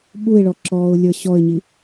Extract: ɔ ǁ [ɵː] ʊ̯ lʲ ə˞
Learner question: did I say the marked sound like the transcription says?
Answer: no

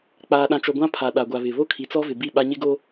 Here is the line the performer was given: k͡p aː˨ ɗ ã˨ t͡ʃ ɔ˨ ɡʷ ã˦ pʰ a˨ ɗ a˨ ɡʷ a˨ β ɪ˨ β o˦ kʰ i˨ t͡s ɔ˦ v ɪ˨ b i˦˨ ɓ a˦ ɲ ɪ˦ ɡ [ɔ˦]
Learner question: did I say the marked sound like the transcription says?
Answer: no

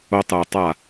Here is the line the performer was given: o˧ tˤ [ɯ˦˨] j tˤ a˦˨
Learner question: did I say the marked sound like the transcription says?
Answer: no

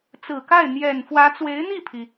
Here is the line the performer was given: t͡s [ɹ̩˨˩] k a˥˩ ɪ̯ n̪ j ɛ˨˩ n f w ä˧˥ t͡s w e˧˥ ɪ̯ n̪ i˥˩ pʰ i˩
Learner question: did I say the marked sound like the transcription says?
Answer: yes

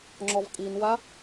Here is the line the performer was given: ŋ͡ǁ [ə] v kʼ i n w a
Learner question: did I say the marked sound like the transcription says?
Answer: no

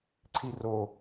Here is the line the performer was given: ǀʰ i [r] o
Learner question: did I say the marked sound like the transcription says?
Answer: yes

